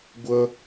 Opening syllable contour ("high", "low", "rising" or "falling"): high